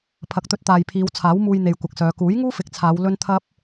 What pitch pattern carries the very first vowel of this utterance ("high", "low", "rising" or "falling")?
rising